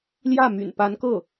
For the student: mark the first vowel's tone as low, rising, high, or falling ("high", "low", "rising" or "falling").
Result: falling